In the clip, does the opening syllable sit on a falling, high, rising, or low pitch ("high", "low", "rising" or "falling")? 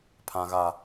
low